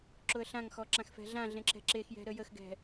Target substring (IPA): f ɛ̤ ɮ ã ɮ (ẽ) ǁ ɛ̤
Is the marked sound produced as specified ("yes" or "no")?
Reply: yes